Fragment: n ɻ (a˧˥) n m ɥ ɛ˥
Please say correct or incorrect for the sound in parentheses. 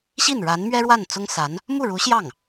correct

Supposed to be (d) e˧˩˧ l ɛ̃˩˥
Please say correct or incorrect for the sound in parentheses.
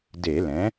correct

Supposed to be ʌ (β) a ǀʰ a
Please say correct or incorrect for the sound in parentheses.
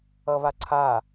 correct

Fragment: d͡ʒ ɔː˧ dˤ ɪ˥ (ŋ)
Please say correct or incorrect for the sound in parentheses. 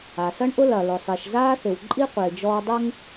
correct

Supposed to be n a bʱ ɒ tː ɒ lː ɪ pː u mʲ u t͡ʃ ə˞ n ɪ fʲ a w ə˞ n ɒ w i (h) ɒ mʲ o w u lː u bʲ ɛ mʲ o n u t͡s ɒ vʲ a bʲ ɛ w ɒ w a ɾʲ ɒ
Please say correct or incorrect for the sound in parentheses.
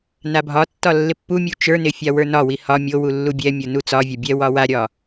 correct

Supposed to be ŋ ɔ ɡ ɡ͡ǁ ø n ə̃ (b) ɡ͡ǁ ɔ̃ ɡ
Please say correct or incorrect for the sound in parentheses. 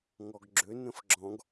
incorrect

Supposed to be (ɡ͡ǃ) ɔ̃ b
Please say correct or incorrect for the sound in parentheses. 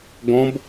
incorrect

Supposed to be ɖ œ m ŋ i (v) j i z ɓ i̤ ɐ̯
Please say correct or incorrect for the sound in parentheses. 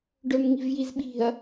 correct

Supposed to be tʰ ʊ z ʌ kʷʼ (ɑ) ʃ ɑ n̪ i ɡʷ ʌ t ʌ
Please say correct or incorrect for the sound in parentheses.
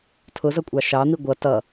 correct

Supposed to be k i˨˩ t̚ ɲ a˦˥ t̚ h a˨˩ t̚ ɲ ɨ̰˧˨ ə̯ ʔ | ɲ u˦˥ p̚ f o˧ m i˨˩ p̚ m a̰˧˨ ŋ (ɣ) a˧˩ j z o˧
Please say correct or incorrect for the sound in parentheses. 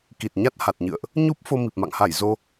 incorrect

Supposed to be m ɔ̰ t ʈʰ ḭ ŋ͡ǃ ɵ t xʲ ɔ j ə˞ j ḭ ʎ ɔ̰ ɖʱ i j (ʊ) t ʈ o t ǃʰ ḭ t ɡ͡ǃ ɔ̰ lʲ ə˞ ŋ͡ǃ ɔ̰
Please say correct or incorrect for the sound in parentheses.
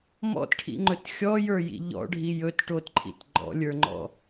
incorrect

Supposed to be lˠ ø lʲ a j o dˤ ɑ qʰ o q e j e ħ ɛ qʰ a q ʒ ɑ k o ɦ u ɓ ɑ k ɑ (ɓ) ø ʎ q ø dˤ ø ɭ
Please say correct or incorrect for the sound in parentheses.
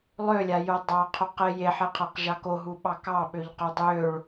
correct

